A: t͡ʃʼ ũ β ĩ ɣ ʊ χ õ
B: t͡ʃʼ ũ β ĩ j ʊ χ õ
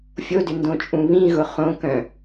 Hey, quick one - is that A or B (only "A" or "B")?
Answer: A